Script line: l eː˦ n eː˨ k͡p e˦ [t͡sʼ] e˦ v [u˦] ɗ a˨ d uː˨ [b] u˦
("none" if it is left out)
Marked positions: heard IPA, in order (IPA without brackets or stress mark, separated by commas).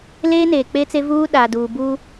t͡s, uː˦, b